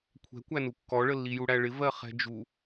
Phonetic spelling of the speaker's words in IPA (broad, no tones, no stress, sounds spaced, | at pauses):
kʷʰ ɛ̤ kʷ æ n u kː ɔ ɭ ə lː i j u ɽ æ ɭ ɪ v ɜ χ ɛ̤ d͡ʒ u